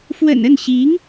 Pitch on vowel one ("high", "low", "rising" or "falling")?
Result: low